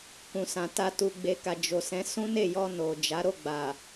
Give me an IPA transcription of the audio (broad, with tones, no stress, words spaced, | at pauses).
kũ˨sã˨ta˧ tu˨ɡ͡be˨ka˨ d͡ʒo˨sɛ̃˨˦ sũ˦ne˦˨jɔ˧ no˨d͡ʒa˨˦ ɾo˦˨ɡ͡ba˨